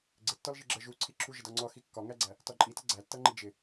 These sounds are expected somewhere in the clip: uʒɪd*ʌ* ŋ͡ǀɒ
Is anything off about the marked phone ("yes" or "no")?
yes